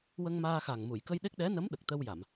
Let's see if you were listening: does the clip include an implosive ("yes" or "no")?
yes